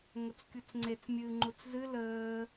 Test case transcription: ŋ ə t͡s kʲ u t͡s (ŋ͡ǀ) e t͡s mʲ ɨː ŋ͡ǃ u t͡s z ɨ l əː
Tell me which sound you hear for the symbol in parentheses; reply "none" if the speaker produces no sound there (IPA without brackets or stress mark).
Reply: ŋ͡ǀ